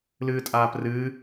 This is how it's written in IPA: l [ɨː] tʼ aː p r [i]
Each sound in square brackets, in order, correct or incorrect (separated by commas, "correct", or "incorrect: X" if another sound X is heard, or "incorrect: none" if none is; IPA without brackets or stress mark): correct, incorrect: ɨ